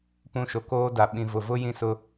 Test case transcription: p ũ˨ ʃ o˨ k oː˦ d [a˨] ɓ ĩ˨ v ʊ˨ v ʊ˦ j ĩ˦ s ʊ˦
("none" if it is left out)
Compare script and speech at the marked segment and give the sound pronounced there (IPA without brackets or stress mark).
a˨